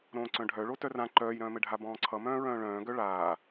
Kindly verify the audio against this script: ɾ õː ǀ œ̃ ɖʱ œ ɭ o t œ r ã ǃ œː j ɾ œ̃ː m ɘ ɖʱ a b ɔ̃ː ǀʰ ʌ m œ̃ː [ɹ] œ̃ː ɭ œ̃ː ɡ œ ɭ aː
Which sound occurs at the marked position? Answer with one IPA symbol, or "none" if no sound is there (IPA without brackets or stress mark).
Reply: ɹ